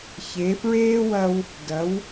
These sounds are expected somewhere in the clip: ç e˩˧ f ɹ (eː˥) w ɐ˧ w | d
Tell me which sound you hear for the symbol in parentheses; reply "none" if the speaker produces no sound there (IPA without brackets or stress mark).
eː˥